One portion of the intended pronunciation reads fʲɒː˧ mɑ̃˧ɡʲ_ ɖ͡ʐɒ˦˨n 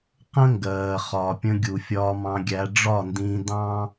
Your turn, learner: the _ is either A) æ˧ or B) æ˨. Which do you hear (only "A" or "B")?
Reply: A